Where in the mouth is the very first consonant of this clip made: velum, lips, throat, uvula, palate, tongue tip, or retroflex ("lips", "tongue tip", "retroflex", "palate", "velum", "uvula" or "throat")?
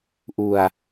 throat